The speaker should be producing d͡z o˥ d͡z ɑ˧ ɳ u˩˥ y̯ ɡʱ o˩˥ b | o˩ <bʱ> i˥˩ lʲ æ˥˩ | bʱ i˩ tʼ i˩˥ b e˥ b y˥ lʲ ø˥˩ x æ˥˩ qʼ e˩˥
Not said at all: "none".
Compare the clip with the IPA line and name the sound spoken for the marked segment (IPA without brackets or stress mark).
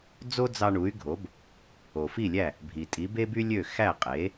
f